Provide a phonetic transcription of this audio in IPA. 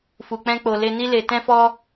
f u˨ k͡p ɛ̃˧ k͡p o˨ l e˧ n i˦ l e˧ t ɛ̃˦ f ɔ˦

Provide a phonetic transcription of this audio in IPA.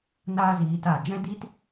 n aː˦ z iː˧ t a˦˨ d͡ʒ ɛ̃˦ d iː˦ t

